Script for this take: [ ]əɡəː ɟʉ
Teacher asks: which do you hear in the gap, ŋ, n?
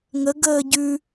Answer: ŋ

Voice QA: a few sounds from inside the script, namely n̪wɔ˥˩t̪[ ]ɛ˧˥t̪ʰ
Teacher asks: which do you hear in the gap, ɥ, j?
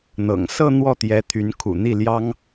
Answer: j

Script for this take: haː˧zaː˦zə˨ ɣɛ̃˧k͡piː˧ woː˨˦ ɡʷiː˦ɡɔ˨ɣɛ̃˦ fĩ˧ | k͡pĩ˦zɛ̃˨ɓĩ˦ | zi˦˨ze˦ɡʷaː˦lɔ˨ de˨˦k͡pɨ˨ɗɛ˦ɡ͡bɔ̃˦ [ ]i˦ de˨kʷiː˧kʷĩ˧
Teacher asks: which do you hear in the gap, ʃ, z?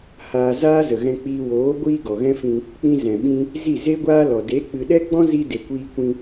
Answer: z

